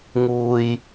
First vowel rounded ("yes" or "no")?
yes